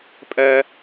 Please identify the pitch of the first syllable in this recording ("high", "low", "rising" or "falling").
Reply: high